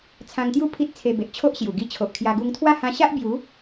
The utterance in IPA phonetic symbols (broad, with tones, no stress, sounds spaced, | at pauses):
t͡sʰ ã˧ ŋ t̪ j u˥˧ pʰ i˦ t̚ t͡sʰ e˧ b e˨ ʔ t͡ɕʰ o˦ ʔ ɕ j u˨˩ ɡ i˧ t͡ɕʰ o˨ ʔ kʰ j a˧ ɡ u˧ ŋ t̪ʰ w a˥˧ h ã˧ ɕ a˦ ʔ b j u˨˦